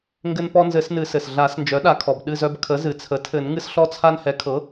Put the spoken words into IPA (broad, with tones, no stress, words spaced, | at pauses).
ŋɡɘ˦npɔ˦nzɘ˨˩˦snɨ˨˩˦ sɘ˩sɮa˨˩˦snd͡ʒœ˩˥ ɗa˩˥kʰɔ˩bɗɨ˥˨zœ˦b kʰə˩˥zɨ˩t͡sʰə˩˥tʰɘ˨˩˦n ŋɨ˦sɬɔ˦t͡sʰa˦n hɛ˩˥kʰɤ˩˥